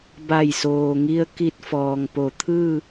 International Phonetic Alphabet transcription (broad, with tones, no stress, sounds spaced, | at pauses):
b a˧˩ j s oː˩ ŋ i˧ ə̯ k i˧ t̚ f ɔː˩ ŋ p o˩˧ t̪ʰ ɯː˥˨